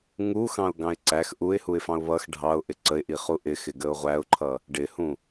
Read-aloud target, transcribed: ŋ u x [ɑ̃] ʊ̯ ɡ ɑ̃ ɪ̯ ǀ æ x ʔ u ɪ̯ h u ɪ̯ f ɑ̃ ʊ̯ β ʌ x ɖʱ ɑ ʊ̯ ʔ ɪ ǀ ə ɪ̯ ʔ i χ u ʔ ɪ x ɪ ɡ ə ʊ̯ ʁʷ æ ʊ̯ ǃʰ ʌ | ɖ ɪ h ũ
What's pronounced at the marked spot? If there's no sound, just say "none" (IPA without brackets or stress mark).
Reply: ɑ̃